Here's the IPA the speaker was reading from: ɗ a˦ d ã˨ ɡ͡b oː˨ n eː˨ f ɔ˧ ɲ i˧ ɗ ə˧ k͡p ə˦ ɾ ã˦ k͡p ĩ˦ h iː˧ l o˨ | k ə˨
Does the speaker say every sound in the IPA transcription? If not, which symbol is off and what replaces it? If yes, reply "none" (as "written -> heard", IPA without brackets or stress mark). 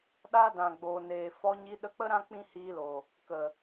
none